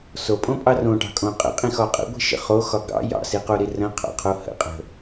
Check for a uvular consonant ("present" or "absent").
present